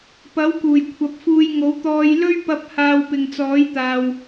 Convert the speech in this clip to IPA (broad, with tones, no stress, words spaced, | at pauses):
pɐ˨˥wkuː˨˩j kʷʰɐ˨p̚fuː˧jŋo˨˥wt̪ɔː˧j lɵ˥ɥpɐ˧p̚ haː˧wpɪ˨ŋt͡sɔː˨˥jt̪aː˨w